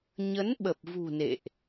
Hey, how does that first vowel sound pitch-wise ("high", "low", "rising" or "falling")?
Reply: rising